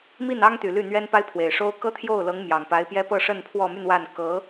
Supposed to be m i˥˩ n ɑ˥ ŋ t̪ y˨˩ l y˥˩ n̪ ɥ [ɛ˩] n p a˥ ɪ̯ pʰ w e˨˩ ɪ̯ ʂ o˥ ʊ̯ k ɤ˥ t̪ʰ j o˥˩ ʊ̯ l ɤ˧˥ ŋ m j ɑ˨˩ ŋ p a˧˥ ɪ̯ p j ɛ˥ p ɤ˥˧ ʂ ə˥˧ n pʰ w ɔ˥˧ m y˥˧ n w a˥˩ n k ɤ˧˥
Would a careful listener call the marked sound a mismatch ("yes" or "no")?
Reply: yes